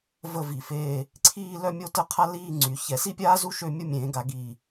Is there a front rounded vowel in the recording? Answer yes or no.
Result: yes